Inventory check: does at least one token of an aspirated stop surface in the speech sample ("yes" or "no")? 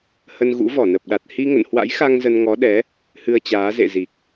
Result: no